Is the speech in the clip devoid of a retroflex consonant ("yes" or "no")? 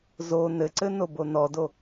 yes